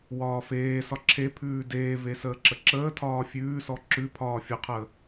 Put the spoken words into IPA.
w ɒː f eː s ɒ ǁʰ e pʰ ʉː d eː v e s əː ǁ ə ǁ əː tʰ ɒː fʲ ʉː s ɔ ǁ ʉ pʰ ɒː fʲ ə qʰ əː

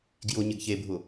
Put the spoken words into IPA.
ɡ j ʊ ɲ ɪ ɡ ç e bʱ ʊ

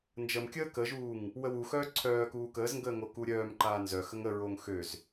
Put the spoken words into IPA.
n d͡ʒ ə m kʲ əː k ə ʒ uː ŋ | w ə w u x œː ǀʰ œː k uː k əː z ŋ ɡ əː ŋ o k u ɾʲ œː m ǃ aː n z œ x ə ŋ ə ɹ o ŋ x ø z

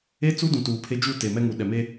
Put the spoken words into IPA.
e˦ t͡s u˦ d ũ˨ t uː˨ pʰ e˦ d͡ʒ u˦ t e˨ m ɛ˦ ŋ u˨ ɗ ɛ˨ m e˦

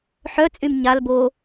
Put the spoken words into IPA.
ħ œ t͡sʼ y m ɲ a l b o

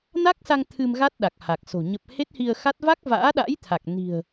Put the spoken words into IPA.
n a˦˥ k̚ s a˧ ŋ t̪ʰ ɨ˧ m ɣ a˦˥ t̚ ɗ a˨˩ k̚ h a˨˩ k̚ s o̤˨˩ ɲ ə˨˩ p̚ h e˦˥ t̚ h i˧ ə̯ x a˦˥ t̚ v a˦˥ k̚ v a̰ː˧˥ ɗ a̰˧˥ j t̪ʰ a˨˩ k̚ n i̤˨˩ ə̯

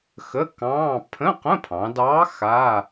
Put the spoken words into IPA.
x ə˧˥˧ k ɑ̃ː˧˥˧ pʰ ə̃˧˥˧ q ə̃˧˥˧ pʰ ɑ̃˩˧ d ɑ˧˥ x a˧˥˧

